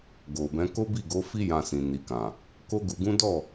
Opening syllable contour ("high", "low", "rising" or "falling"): low